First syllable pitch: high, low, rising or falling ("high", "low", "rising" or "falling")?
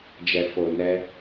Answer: low